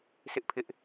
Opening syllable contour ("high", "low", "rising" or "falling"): high